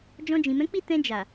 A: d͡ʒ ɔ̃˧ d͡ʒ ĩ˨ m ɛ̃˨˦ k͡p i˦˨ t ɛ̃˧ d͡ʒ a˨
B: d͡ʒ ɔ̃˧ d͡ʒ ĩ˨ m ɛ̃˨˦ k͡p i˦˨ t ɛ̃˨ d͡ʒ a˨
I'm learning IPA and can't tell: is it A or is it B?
A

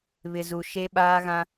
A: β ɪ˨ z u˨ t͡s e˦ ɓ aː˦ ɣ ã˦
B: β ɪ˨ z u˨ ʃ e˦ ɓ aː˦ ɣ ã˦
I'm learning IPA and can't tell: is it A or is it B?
B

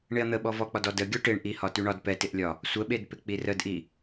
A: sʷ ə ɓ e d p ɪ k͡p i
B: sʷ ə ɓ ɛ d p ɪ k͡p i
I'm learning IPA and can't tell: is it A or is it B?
A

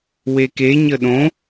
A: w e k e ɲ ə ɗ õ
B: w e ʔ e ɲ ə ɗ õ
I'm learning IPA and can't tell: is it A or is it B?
A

